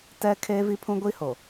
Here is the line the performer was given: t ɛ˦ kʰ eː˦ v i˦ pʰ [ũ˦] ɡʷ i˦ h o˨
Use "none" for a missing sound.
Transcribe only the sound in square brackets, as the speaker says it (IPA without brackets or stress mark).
ũ˦